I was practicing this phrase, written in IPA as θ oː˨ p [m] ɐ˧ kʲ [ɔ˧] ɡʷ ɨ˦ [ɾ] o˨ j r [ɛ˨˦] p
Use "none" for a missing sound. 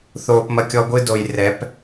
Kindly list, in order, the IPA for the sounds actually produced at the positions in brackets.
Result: m, ɔ˧, d, ɛ˨˦

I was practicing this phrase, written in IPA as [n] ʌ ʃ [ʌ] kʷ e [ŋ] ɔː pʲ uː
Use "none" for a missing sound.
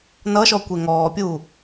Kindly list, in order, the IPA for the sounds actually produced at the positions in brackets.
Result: n, ɔ, ŋ

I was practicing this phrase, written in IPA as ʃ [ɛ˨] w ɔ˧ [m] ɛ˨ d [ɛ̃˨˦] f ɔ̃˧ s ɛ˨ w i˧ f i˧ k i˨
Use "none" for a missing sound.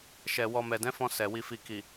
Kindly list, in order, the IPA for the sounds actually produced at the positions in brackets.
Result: ɛ˨, m, ɛ̃˨˦

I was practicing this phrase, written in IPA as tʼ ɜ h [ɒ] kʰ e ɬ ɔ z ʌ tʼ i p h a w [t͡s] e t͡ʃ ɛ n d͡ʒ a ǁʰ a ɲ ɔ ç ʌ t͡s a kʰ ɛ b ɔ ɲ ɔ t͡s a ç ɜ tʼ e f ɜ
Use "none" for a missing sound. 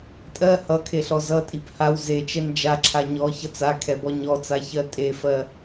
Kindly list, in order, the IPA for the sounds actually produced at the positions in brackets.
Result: ʌ, z

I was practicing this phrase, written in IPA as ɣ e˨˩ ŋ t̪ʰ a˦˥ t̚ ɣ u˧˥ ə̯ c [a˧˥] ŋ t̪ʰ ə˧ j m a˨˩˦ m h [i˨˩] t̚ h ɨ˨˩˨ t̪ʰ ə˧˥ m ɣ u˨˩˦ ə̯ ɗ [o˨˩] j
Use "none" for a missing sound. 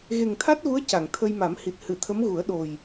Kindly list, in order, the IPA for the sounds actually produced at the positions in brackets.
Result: a˨˩˨, i˨˩, o˨˩

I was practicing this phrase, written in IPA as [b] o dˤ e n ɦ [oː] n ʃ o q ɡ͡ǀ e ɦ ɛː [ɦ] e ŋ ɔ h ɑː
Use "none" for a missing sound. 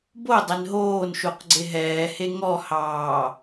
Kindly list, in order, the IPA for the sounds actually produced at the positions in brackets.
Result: b, oː, h

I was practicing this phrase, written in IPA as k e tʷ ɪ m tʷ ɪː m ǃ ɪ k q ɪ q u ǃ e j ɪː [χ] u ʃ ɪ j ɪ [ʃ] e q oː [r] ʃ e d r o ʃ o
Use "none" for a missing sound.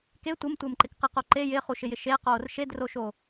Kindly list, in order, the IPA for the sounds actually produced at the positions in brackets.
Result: χ, ʃ, r

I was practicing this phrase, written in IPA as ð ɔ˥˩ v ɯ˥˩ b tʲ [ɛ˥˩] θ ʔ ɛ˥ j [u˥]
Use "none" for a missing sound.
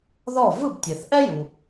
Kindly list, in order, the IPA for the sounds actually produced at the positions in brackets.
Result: ɛ˩, u˩

